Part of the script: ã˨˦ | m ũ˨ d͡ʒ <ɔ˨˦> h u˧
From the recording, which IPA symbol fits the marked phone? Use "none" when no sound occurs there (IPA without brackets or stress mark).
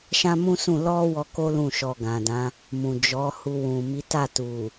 ɔ˨˦